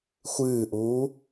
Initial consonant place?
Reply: velar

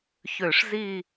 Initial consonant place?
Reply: palatal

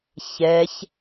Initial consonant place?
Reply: palatal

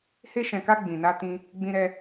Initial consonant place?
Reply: glottal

